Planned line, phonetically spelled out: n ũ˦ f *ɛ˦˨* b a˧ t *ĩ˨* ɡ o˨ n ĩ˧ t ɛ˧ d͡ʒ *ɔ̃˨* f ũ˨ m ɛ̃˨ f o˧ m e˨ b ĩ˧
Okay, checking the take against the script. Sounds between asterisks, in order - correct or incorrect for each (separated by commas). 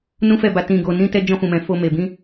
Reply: correct, correct, incorrect